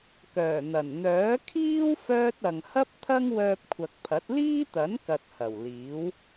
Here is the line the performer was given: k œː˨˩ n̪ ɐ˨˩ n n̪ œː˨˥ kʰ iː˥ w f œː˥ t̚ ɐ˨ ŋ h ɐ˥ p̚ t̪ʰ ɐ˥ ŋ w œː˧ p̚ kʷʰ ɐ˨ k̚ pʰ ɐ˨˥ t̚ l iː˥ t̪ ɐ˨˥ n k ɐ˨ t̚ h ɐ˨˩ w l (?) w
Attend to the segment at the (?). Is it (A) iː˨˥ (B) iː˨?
A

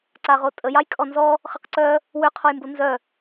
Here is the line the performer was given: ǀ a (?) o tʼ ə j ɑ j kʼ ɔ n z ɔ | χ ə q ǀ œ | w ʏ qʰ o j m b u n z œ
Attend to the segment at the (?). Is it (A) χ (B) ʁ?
B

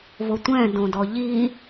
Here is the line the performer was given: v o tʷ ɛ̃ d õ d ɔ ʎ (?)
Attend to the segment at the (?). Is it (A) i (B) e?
A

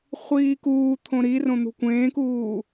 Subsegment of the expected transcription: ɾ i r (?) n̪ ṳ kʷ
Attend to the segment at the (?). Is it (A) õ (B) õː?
A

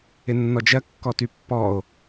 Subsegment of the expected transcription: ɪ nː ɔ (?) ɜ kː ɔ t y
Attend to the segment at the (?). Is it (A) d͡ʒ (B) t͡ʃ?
A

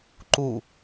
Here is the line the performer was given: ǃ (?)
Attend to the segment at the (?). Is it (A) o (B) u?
B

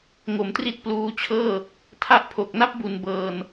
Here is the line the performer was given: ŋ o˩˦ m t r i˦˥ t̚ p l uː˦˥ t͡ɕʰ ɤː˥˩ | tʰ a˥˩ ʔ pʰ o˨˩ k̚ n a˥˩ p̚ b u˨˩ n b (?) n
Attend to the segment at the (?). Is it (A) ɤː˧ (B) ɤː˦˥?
A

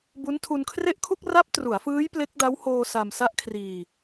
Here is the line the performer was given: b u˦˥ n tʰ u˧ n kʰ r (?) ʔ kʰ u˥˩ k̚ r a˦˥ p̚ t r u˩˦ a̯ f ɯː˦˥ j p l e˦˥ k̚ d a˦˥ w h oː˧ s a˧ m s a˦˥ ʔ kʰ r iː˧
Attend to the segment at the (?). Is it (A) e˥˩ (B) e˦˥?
A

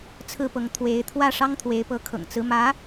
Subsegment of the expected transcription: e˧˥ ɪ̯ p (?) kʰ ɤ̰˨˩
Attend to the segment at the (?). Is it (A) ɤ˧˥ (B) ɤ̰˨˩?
A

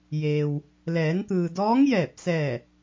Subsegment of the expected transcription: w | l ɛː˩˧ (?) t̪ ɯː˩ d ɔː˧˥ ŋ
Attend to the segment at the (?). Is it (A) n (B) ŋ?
A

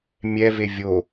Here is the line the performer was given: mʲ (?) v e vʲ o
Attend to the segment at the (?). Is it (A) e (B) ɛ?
B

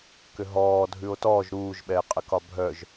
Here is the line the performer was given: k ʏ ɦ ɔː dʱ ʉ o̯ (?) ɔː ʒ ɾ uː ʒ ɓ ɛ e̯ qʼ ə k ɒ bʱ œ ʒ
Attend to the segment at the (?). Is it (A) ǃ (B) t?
B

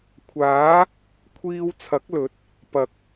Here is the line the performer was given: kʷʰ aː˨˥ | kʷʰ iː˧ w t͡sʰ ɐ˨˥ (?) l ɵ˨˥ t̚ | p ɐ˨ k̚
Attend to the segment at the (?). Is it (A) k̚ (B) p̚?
A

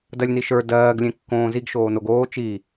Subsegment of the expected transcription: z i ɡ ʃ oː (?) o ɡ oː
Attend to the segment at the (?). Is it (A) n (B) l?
A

